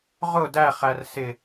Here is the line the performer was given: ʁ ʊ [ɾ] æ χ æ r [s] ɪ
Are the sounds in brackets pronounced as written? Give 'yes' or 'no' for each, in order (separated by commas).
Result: no, yes